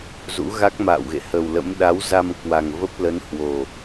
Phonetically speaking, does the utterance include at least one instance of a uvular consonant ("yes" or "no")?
no